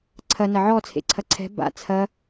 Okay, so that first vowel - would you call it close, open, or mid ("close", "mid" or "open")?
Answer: open